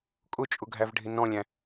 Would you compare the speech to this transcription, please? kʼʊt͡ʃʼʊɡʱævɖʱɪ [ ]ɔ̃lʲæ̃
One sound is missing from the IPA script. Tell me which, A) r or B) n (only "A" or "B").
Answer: B